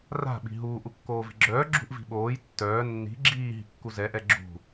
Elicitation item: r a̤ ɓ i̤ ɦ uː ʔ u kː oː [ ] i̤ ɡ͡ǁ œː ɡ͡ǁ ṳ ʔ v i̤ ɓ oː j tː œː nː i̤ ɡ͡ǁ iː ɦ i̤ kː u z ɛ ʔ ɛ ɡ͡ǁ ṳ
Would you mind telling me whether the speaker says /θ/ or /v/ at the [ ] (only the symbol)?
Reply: v